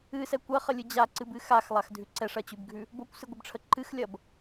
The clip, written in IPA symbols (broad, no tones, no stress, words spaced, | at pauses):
ɨsɛ kʷɐχəlʲɨ d͡ʑaǀɨbɨ xaxlˠaxdʱʉ ǀɛʂɐt͡ɕʉbɡʱʉ | bokʷsɨɡʷɨbʈ͡ʂʰə ǃɨxlʲɐb